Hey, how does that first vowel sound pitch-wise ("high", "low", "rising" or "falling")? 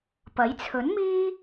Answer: rising